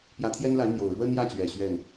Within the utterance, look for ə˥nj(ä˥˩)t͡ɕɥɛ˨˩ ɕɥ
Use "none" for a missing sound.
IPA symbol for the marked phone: ä˥˩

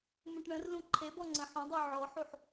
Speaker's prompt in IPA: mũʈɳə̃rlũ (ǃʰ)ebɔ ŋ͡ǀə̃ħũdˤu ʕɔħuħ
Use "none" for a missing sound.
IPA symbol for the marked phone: ǃʰ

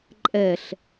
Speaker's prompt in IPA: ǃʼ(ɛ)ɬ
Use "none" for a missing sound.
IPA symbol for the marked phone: ɛ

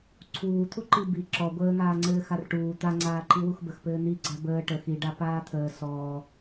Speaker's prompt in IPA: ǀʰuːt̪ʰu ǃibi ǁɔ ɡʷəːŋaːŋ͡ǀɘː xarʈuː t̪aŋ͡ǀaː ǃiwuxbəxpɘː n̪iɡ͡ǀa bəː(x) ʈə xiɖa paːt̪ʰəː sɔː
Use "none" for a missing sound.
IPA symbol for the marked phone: none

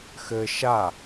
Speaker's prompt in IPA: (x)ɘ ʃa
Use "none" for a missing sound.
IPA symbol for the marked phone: x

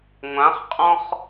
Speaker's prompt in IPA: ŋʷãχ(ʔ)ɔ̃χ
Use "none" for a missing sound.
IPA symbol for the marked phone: qʼ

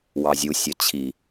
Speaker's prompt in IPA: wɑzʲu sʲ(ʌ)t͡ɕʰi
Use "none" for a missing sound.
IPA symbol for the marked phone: ʌ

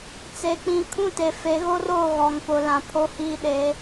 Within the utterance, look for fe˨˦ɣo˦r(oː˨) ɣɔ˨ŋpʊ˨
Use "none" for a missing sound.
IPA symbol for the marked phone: oː˦˨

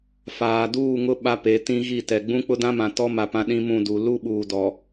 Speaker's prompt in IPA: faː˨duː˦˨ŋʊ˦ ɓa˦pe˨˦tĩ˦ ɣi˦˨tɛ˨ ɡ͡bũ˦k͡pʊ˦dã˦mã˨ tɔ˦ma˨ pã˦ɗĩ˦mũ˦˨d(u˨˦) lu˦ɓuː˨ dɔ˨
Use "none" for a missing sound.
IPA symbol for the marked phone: u˨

